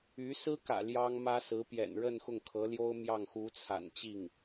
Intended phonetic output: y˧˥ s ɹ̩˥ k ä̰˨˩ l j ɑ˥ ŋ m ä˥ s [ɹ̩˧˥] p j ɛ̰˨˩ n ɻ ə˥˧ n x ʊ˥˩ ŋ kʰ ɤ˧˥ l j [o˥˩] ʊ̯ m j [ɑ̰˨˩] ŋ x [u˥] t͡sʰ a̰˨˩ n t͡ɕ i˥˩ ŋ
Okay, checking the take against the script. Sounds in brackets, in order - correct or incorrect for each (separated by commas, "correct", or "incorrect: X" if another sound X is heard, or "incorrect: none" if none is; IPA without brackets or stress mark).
correct, incorrect: o˥, incorrect: ɑ˥˩, incorrect: u˧˥